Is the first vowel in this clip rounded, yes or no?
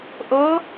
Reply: yes